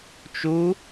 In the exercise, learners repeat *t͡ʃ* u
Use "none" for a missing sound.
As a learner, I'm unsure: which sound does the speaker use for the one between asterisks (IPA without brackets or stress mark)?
t͡ʃ